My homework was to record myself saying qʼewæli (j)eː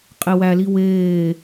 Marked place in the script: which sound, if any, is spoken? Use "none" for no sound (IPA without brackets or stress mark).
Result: w